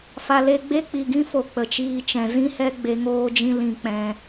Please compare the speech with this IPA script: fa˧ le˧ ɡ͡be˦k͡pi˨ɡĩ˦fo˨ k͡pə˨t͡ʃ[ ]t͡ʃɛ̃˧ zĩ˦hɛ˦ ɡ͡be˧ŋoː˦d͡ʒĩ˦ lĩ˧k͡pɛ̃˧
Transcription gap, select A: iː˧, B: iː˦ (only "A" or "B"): B